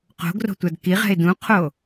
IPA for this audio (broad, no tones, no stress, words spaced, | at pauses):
qo̤ɡro̤tʷad kiʁɛ̤ɪ̯ dũqʰo